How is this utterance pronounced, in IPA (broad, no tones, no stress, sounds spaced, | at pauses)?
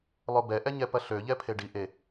lˠ o b ɛ ʔ ɛ ɲ ɛ p ɐ ɬ ø ʎ ɛ pʰ e ɖ i ʔ e